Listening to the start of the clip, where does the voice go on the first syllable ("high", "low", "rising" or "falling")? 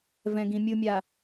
low